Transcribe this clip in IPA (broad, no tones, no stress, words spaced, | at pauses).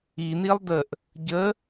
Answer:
in̪ilˠ dəʔ | ɟə